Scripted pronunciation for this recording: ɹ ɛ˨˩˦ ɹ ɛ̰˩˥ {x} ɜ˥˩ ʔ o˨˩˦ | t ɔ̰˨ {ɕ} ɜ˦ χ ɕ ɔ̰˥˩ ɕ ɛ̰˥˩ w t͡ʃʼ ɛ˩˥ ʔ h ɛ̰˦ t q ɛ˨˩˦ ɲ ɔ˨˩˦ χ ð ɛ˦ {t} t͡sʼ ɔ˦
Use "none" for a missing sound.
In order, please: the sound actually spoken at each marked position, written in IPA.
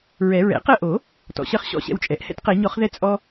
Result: q, ɕ, none

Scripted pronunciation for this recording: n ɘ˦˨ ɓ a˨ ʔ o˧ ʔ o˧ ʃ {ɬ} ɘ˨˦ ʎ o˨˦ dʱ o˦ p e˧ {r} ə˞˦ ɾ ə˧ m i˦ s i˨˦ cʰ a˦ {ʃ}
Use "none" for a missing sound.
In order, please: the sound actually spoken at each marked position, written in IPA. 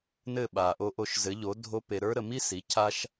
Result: z, ɾ, ʃ

